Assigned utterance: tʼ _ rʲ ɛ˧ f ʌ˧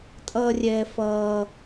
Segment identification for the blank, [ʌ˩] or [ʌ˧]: ʌ˧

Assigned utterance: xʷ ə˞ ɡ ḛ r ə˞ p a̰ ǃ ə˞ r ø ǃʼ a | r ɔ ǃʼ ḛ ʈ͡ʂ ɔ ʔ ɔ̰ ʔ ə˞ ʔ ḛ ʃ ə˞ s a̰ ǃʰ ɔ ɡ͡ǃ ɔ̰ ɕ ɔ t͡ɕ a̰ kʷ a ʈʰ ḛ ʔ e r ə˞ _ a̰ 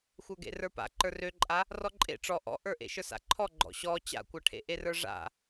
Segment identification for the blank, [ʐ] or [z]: ʐ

